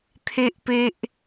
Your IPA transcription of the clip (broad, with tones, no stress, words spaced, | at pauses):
t̪ʰe˦ʔpe˦ʔ